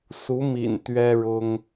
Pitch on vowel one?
rising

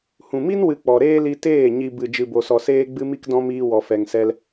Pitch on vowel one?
low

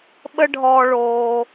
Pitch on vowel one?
high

